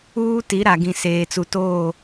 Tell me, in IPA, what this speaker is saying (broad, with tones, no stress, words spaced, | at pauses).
uː˦ti˨˦ɾa˨ɡĩ˨ seː˨t͡su˨toː˦˨